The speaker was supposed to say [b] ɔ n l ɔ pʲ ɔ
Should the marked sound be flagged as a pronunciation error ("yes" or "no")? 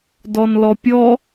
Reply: yes